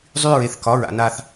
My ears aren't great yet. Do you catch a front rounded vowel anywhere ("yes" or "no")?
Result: yes